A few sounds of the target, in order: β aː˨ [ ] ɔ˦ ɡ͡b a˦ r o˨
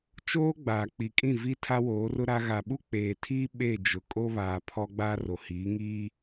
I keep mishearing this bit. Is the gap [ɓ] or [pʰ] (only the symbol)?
pʰ